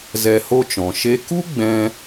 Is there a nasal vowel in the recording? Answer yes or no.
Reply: yes